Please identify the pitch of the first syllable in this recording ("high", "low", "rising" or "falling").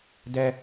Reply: high